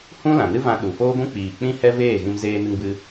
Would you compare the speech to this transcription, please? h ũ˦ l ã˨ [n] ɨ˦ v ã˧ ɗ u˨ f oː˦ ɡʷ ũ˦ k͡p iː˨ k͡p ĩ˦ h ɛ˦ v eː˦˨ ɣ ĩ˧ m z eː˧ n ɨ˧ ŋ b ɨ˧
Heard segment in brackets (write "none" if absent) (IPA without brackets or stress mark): n